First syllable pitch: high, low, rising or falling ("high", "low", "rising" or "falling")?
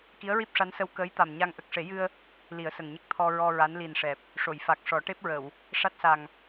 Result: rising